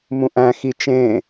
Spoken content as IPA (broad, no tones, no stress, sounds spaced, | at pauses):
m ũ ʔ æ̃ x i t͡ʃ ẽ